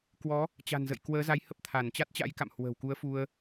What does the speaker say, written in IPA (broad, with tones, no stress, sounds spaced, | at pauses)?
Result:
k w ɔ˨˦ | t͡ɕ a̤˨˩ n z ə̰˧˨ j k w əː˨˦ z a˨˦ j h ə˦˥ p̚ t̪ʰ a˧˩ n t͡ɕ a˦˥ t̚ t͡ɕ a̰˧˥ j k a̰˧˨ m h w ə̤˨˩ w k u˨˦ ə̯ f u˧ ə̯